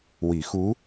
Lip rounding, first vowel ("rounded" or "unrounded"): unrounded